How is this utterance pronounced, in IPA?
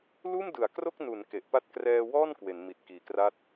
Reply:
l uː˥˩ m d ɯ˩˦ a̯ k r o˥˩ k̚ n uː˩˦ n k e˨˩ ʔ p a˦˥ t̚ k r ɛː˧ w ɔː˥˩ n k w e˩˦ n m i˨˩ t̚ k iː˨˩ k r a˥˩ t̚

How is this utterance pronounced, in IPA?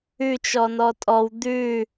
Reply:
ʉ t͡ʃ ɔ n ɔ tʼ ɔ w d̪ ʉ

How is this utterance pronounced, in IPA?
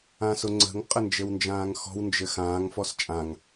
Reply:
ã s ʊ ŋ͡ǀ ə̤ ŋ qʼ ə n d͡ʒ ɘ w n d͡ʒ ãː ŋ x ɔ̤ w n d͡ʒ ɘ x ãː ŋ f ɔ s t͡ʃʼ ã ŋ

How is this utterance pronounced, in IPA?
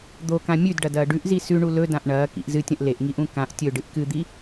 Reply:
d̪ o k ã mʲ ʉ d ɖ ɐ d ɐː ɖ ʉ ʔ z i s ʉ ɳ u l ɵ d ã ʔ ɳ ɐː k ḭ ʔ z ɨ tʲ ɐ̃ ʔ l e ʔ ŋ i ʔ ũ k ã ʔ tʲ ɵ ɖ ɨ ʔ k ɨ d̪ i

